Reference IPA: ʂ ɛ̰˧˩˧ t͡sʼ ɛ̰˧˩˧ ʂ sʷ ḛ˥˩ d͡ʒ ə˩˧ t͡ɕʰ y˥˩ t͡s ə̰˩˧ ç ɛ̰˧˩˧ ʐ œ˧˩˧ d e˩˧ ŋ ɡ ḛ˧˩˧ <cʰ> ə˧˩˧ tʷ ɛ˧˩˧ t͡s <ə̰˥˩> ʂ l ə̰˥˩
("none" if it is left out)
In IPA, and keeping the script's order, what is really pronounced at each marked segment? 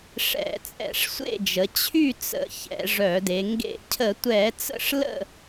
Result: cʰ, ə̰˥˩

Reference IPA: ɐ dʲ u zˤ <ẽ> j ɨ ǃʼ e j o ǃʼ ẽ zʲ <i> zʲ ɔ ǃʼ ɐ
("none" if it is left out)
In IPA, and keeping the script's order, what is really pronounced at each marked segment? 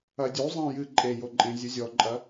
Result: ĩ, ɨ

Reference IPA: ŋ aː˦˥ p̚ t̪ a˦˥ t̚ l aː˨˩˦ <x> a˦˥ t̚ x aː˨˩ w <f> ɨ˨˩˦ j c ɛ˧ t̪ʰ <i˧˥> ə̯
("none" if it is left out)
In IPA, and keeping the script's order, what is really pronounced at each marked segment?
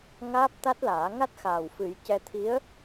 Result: ŋ, f, i˧˥

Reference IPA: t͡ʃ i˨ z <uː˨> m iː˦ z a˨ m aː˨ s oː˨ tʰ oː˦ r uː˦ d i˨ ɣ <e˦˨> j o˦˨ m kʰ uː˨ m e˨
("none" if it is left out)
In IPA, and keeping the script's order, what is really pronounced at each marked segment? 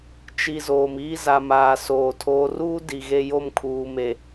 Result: oː˨, e˦

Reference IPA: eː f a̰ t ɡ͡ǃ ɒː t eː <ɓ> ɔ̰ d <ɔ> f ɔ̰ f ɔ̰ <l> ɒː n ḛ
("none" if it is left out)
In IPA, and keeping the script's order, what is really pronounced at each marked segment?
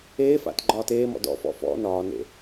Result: m, ɔ̰, n

